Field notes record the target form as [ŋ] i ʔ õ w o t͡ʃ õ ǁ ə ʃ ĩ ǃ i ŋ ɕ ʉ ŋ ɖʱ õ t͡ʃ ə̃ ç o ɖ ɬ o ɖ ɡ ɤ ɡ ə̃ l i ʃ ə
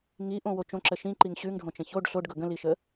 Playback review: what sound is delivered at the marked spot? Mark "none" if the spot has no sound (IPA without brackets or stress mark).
ŋ